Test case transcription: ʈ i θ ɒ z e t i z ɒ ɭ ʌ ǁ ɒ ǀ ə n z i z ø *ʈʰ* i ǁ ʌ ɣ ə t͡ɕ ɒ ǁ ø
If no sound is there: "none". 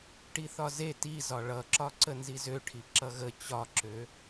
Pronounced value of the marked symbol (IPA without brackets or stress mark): ʈʰ